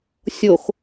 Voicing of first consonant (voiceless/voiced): voiceless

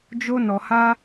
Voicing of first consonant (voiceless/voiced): voiced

